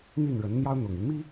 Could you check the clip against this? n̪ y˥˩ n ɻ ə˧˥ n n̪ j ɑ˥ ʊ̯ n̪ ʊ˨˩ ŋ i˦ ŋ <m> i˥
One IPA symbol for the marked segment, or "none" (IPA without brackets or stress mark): m